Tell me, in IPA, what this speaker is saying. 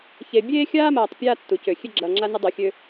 ç e˨ bʲ eː˦ xʲ aː˦ m aː˨ tˤ pʲ aː˦ tː u˨ c ø˨ xʲ e˦ ɡ͡ǁ ɐː˨ ŋ͡ǁ a˦ n ʊ˦ dˤ ø˨ xʲ ø˦

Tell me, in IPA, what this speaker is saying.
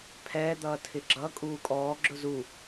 pʰ ɛː d̪ ʌː tʰ ɪ ɡ͡ǁ ʌ kʼ uː kʼ ɔː ɡ͡ǁ ʊ z u

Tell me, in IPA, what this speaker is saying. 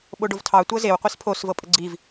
ɓ o ɖ o v tʰ ɑ tʷ ɤ z e w qʷ i s pʰ o s v ɤ pʼ ə ɡ͡ǀ i v

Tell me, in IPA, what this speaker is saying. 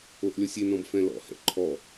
o ʔ lʲ ɔ sʲ e n ɔ̃ b f ɛ̃ l ɔ̰ h ɛ̰ ǃʰ ɔ

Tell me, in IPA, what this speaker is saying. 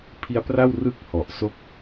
pʰ i˦˥ a̯ p r a˥˩ w r ɯ˥˩ k̚ h ɔ˨˩ ʔ s o˦˥ k̚

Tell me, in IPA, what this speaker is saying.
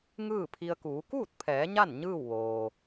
ŋ ɯː˥˨ pʰ i˧ ə̯ k uː˩˧ k uː˥˨ t̚ pʰ ɛː˩˧ ɲ a˥˨ n ɲ ɯː˥˨ w ʋ oː˩

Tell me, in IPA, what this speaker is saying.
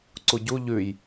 ǀ u ɟ u ʎ ʉ j

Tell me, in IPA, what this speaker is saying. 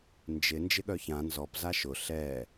n d͡ʒ ɪ n d͡ʒ ɪ ɠ œ ç ã n z ɔ p z a ʃ ʊ ɬ ɛ

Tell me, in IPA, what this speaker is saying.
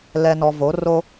l ɛ˨ n ɔ˨ v o˨˦ r o˦

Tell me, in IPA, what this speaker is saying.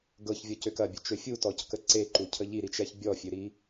ɡ ɤ ç vʲ ɔ c ø k ɐ bʲ ʊ t͡ʃ ø fʲ u t ɔ c k ə ǀ e ǃ u cʰ ə ʎ i ɾ i t͡ʃ ɛ ç bʲ ɔ fʲ ø ɾ i

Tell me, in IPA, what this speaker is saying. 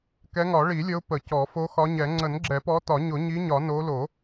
k ɛ˨˦ ŋ ɒ˨˩˦ ɭ i˨˩˦ lʲ ə˨˦ ʊ̯ p ə˨˩˦ c ɔ˨˩˦ f o˨˦ x ɒ˨˦ ɲ ɛ˨˩˦ ŋ͡ǀ ə˨˩˦ n ɡ͡ǁ ɛ˨˩˦ p ɔ˨˦ t ɒ˨˩˦ ɲ ʊ˨˩˦ ɲ i˨˦ ɲ ɒ˨˩˦ n o˨˦ l o˨˩˦

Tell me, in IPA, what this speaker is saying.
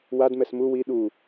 w a d m ɛ s m u w i ɗ u

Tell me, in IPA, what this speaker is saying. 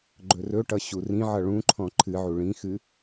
ɡ͡ǃ ɵ r ɵ ʈ ʌ ɕ u r ĩ ʕ ʌ ɭ ũ ǃʰ ɔ̃ ǃʰ ɨ ʕ u ɭ ĩ x ɨ

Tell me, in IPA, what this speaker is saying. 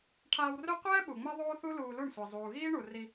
ʈʰ aː˧ w r ø˦ qʷ ɛː˦ ɓ u˨ ŋ͡m ɛ˦ ðˤ oː˦ θ u˦ l uː˧ l u˦˨ ɳ sʷ e˨ zˤ uː˨ ɣ iː˦ ɳ u˨ r i˧

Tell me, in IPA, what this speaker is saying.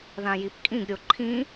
ð ã j i p kʼ ĩ ɡ ɾʲ o ǃʰ ĩ

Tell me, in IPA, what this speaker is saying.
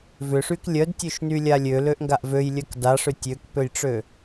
v ʏ ʂ y k lʲ œ d tʲ ø ʃ n y lʲ a lʲ ø l ø ʔ ŋ ɡ a ʔ v ø j lʲ œ k d a ʂ ʏ tʲ ø k p ø j ʈ͡ʂ ø

